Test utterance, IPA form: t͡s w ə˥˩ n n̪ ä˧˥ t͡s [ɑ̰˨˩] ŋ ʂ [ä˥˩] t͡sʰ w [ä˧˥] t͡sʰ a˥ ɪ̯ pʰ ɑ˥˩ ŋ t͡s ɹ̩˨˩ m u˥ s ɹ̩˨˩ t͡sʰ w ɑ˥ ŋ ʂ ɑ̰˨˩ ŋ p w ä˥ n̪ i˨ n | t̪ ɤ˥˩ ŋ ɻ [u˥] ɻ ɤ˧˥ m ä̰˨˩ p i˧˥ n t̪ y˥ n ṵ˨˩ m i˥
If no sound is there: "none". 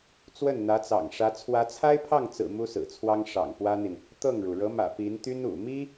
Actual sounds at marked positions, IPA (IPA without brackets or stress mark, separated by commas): ɑ̰˨˩, ä˧˥, ä˧˥, u˩